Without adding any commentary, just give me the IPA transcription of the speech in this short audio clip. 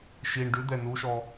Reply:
ʃ i ɳ ɖ ʉ d̪ ɛ n u ʃ ɔ

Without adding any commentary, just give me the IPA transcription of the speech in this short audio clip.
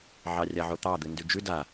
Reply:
ʕ ɑ rʲ a ʕ o t̪ ɑ d̪ ɨ n d ʉ d͡ʒ ʉ d a

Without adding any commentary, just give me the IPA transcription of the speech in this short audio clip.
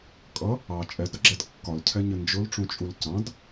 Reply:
kʼ ʌ | ɑ t͡ʃʼ ɛ d ɾ ʌ ɡ͡ǁ ɛ d kː ɒ l cʰ ɛ ɲ ə n d͡ʒ ʊ l ʈ͡ʂ ũ t͡ʃʼ u l c ɑ̃ d

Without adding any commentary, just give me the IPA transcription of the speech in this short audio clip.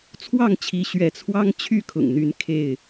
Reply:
t͡sʰ w ɑ˥˨ ŋ t͡ɕʰ i˨˦ ɕ ɥ ɛ˨˦ t͡sʰ w ɑ˦ ŋ t͡ɕʰ y˥˨ kʰ ʊ̰˨˩ ŋ n̪ y˨˦ n kʰ e˥˨ ɪ̯

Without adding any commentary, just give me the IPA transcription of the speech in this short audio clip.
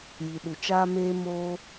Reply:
j i˨ ɗ u˨ t͡ʃ aː˦ m eː˦ m oː˦

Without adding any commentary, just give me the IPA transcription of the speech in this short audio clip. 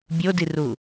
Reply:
bʲ o d i r u

